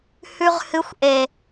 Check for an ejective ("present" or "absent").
absent